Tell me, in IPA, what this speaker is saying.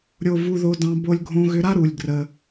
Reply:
ɾʲo˧ vu˧ðo˧dɑ̃˧ bo˧lʲɡʱõ˧ɣʏ˧ɾa˥ ɾu˩lʲ ɡrə˩

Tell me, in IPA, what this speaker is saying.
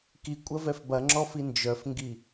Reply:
kikʷʼɐ vɛfbɐŋ͡ǁɔfi nd͡ʒœfŋɡi

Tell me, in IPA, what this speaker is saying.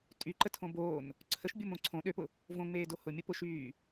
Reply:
tʼyǃə tʰõboːn | ǀʰəʃ bʲomõǀʰõ ɗøpʊ | võŋ͡meːdo hʊmʲʊpʊʃyː

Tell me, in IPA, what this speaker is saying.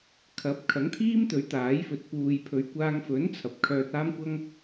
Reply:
kʰɐ˨˥p̚kʰɐ˨˥ŋt̪ʰiː˥mt̪ɵ˨˥ɥ t̪aː˨˥jfɵ˨˥t̚ puː˨j pʰɵ˨ɥkʷaː˧ŋfɵ˨˥n t͡sʰɐ˨p̚ kʰœː˧t̚aː˥mkʷɐ˥ŋ

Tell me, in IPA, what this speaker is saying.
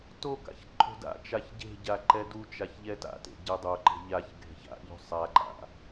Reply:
toka̰ç ǃʰo̤da̰t͡ʃaç ɟe̤ ɟaǃɛdut͡ʃaç ʎɛta̰tḛ ɟɛdˤoǃe̤ ʎaç ɡʱe̤ça̰ʎo̤ sˤaǃa̰

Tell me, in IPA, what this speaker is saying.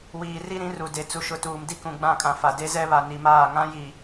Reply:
wiː˨ri˦ɾĩ˨˦r u˨de˨ t͡su˨ʃʊ˨tuː˨m di˦kũ˨ɡ͡bã˦˨kʼã˨ fa˨de˦zɛ˦ βa˨ni˨maː˦˨ ŋã˦ji˨

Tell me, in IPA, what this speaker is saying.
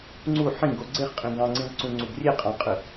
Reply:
ŋ͡ǀu ħĩɡo ɡ͡ǀeχqʼĩ ɡɑ̃ŋ͡ǀĩʁǀũŋ͡ǀuɡ rʲeqʼɑ̃qʼɯ

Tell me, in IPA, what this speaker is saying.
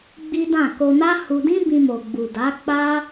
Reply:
ɡ͡bi˦dã˦˨ ko˧na˦ hu˧dĩ˦ bĩ˧mo˨ɡ͡bu˨ da˨˦ k͡pa˦

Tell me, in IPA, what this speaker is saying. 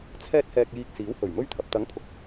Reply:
t͡sʰɛː˥t̚hɛː˧k̚jiː˧k̚ siː˨˥whɵ˨˩ɥmɵ˥ɥt̪ʰɐ˨p̚ t̪ɐ˨˥ŋpʰʊ˨k̚

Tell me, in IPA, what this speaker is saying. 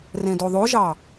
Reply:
rẽdoðˤoʒɑ

